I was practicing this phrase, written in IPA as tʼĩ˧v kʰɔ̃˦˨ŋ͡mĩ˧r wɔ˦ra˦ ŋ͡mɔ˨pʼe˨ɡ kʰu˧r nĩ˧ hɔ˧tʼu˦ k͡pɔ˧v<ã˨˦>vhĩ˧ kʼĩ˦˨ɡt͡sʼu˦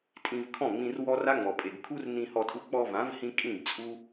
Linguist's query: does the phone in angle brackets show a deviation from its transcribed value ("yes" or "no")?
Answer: no